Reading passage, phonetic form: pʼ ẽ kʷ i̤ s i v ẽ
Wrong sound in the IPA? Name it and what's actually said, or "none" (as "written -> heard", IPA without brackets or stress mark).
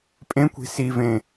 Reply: none